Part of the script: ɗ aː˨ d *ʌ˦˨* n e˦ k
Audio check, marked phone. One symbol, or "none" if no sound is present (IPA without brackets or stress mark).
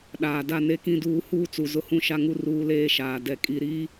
a˦˨